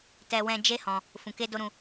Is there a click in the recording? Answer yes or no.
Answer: no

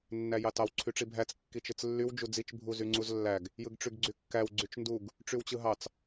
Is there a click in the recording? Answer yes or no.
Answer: yes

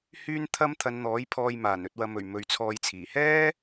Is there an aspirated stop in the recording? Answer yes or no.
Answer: yes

